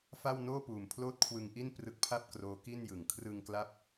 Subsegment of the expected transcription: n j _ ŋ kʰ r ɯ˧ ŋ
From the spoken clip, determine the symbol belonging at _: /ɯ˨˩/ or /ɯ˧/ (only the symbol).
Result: ɯ˨˩